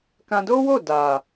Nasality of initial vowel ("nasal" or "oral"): nasal